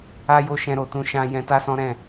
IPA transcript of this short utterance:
a˦jo˦˨ʃɛ̃˧ ɾo˧tũ˧ ʃã˧ jɛ̃˧ta˦sɔ̃˦ɾɛ̃˦˨

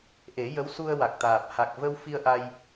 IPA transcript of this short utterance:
ʔe˨˩˦jə˧˥wsu˧ə̯ wa˨˩k̚t̪aː˨˩p̚ ha˨˩k̚və˧wfi˧ə̯ ʔa˧j

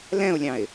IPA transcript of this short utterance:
lɛ̃ʊ̯lʲɑ̃ɪ̯

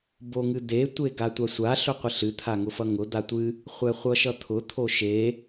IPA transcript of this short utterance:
boŋɨd̪e tʷeɡatʷasʷa ɬʊqʷɨɬɨ t̪ʰaŋʊfʌŋʊ d̪atʷɨ | χʷɛχʷʌʃʌt̪ʰʊ t̪ʰoʃe

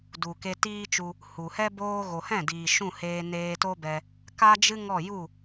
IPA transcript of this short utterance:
du˨ke˧tiː˦t͡ʃu˧ | hu˨hɛ˦ boː˧ɣo˨hɛ̃˦˨ diː˨ʃũ˦˨heː˧ neː˧to˦bɛ˧ | ka˦d͡ʒɨ˦ ŋɔ˦˨ ju˦˨

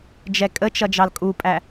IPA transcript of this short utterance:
d͡ʒɛkʼət͡ʃʌ d͡ʒɑlkʼupʼæ

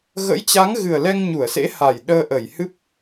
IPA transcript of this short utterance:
ɣə̰˧˥jt͡ɕa˨˦ŋɣɨ˨˩ə̯lɛ˧ŋ ɲu˧˩ə̯sḛ˧˥ha˨˩j ɗəː˧ʔə˧˩jhɨ˦˥p̚

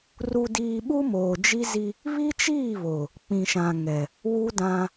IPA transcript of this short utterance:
ru˨diː˨ ɓu˦ moː˨d͡ʒi˦zi˦ | βi˦t͡ʃiː˦˨ βo˨ | k͡pĩ˨ʃã˨ŋɛ˨ | wu˦dã˦

